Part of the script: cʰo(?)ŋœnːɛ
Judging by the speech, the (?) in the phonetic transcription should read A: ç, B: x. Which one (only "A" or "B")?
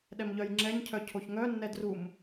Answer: A